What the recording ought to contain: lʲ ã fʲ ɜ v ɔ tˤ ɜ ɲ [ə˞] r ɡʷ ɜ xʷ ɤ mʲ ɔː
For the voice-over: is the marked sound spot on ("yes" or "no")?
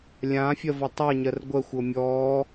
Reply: no